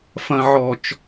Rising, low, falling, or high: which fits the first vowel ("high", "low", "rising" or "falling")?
low